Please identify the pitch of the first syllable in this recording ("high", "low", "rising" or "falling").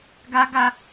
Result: high